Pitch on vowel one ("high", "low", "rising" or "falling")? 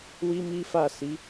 high